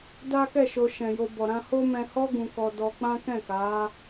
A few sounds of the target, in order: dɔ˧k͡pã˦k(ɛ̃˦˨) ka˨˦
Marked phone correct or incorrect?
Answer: correct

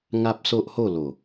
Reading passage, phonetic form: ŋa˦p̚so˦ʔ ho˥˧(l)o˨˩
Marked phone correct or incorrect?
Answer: correct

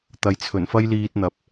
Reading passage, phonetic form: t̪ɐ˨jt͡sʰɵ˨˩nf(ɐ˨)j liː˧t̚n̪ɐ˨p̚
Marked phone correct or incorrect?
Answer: incorrect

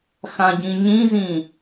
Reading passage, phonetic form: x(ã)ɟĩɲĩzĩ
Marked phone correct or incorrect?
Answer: correct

